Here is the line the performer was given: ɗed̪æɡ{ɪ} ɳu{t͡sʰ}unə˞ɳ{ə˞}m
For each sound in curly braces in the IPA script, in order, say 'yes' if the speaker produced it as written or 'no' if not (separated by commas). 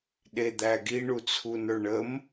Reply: no, yes, no